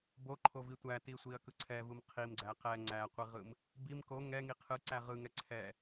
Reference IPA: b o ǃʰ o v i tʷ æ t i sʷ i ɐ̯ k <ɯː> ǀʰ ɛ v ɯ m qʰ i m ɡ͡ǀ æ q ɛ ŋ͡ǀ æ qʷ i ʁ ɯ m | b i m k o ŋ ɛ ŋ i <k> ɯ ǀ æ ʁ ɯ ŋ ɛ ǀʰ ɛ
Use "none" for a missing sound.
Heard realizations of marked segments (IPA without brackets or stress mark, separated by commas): ɯ, qʰ